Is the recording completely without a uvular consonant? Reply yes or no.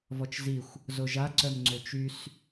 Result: yes